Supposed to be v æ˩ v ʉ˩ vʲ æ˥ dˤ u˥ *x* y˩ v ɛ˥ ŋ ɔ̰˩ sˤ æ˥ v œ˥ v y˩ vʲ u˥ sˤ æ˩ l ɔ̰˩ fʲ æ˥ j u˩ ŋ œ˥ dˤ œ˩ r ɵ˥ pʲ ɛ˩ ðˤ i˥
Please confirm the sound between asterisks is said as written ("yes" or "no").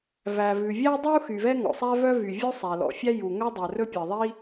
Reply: yes